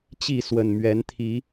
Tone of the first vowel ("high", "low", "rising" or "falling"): falling